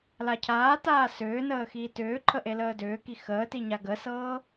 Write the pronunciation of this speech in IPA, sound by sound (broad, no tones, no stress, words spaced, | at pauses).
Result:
lacʰaːtaː sʏː nəːxiːtʏːǃʰə ʔeləːdʏːki xəːti ɲaɡəsɤː